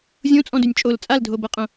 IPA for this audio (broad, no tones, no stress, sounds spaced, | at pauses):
zʲ õ t͡sʼ ɔ̃ d ø nʲ t͡ʃʼ o l t͡sʼ a l dʱ o b ɤ qʼ õ